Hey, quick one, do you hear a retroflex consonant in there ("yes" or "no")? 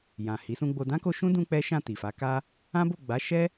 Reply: no